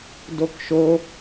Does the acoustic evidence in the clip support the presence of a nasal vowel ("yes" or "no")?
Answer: no